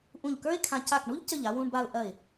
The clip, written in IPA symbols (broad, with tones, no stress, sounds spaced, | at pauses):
ʔ ũ˧˩ ʎ k ə˞˥ ɪ̯ kʰ ã˧ c a˧˩ k ɳ u˥ ʎ c ə˧˩ ʎ a˧ w ũ˧ ɳ b a˧ ʊ̯ ʔ ɐ˧˩ ɪ̯